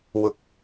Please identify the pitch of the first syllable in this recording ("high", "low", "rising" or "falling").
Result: rising